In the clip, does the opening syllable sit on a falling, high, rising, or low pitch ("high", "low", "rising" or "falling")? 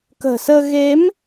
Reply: low